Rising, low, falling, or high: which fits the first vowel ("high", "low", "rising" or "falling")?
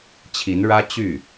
rising